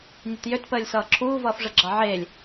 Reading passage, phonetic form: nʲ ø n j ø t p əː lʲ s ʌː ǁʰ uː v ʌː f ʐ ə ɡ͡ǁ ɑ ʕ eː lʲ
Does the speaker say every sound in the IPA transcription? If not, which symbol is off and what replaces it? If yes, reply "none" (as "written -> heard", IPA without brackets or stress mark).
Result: n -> t